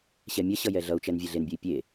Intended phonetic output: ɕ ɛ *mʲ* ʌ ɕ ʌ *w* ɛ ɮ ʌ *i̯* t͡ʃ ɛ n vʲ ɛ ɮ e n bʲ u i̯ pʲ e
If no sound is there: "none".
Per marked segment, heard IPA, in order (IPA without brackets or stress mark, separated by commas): mʲ, j, u̯